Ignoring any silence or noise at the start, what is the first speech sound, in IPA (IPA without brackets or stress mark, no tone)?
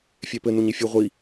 fʲ